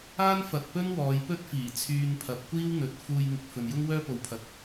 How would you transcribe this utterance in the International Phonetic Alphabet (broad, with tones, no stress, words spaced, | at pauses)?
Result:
aː˥nfɐ˨t̚pɵ˥n wɔː˨˧jpɵ˥t̚fiː˨˩ t͡sʰyː˧npʰɐ˨˥p̚kʷiː˥w n̪ɵ˨˥t̚ fuː˧jŋɪ˨k̚ fɵ˨njʊ˥ŋ wœː˥po˨wpʰɐ˨˥t̚